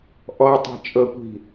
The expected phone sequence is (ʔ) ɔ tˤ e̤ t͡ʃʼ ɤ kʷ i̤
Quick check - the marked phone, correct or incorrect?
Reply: correct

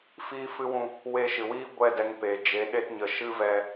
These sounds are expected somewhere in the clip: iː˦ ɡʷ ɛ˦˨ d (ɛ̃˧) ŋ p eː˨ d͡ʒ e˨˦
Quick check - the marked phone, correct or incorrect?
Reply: incorrect: ɛ˧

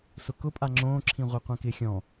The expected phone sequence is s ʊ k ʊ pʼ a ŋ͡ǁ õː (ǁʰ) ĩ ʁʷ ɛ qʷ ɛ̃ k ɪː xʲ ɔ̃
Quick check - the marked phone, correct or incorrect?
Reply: correct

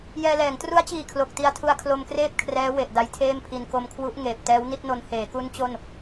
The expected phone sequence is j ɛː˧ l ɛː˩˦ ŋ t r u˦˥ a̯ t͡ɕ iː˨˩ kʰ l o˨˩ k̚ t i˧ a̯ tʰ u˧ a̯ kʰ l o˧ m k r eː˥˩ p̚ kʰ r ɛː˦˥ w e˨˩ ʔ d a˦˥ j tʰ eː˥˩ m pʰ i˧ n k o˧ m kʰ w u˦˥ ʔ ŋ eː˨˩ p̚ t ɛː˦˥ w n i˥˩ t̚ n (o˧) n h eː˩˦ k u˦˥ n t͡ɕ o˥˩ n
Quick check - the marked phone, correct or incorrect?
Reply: correct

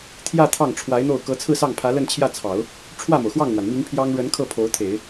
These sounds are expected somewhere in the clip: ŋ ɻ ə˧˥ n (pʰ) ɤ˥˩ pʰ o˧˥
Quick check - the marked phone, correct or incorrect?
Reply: incorrect: kʰ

